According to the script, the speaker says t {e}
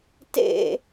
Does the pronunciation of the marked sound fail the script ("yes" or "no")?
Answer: yes